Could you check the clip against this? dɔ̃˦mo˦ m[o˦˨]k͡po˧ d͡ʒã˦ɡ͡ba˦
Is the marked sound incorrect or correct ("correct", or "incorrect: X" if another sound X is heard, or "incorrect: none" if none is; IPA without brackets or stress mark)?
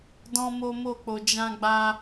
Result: correct